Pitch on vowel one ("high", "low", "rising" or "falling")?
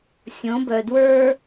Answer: rising